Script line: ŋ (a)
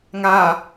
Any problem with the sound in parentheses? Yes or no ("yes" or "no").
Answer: yes